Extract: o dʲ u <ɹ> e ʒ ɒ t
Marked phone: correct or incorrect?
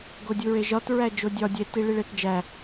correct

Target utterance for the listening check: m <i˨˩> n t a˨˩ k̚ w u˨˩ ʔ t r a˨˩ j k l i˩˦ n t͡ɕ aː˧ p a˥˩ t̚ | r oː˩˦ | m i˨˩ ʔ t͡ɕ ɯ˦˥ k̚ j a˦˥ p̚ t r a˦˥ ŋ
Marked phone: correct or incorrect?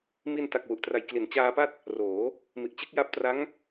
incorrect: i˧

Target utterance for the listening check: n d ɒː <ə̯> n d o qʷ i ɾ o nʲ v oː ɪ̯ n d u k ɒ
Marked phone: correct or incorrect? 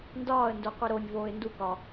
correct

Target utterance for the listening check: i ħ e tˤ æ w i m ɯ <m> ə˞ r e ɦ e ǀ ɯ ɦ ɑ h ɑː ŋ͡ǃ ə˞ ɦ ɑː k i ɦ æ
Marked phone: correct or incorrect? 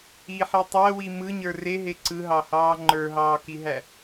incorrect: ɲ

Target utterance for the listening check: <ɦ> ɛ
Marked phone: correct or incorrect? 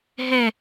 correct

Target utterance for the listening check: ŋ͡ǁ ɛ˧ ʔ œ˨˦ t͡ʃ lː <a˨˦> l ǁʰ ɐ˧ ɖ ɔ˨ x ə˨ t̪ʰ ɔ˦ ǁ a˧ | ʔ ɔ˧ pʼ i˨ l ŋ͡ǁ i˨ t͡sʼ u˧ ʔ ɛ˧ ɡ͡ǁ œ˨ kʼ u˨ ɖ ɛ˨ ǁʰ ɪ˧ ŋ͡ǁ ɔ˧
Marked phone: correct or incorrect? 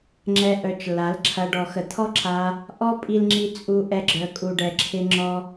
correct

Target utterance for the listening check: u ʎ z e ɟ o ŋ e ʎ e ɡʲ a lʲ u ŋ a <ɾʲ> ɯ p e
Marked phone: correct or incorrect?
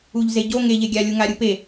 correct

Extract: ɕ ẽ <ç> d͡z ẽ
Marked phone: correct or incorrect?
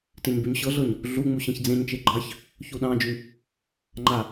correct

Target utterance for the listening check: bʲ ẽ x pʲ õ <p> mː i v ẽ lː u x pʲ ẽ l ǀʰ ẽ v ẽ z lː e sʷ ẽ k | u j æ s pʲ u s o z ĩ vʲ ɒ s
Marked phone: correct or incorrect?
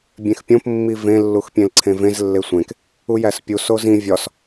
correct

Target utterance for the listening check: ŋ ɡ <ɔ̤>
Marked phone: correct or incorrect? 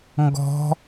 correct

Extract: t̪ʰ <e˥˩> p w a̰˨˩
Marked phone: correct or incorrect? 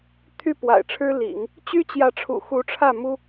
incorrect: y˥˩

